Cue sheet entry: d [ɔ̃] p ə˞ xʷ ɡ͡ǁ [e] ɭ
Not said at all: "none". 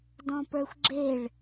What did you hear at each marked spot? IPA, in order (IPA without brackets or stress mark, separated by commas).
ɔ̃, e